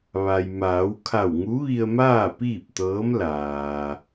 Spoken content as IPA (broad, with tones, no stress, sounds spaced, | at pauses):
ʋ a˩ j m aː˩˧ w kʰ a˧˩ w ŋ u˧˥ ʋ i˧ ə̯ m aː˥˨ p iː˥˨ p̚ t̪ ɤː˧˥ m l aː˩